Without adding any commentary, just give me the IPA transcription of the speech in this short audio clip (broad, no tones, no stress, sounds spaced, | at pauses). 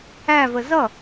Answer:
æ v ə z ʌ